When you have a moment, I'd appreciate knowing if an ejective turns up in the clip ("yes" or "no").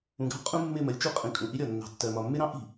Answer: yes